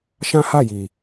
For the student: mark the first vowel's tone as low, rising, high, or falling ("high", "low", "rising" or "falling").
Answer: high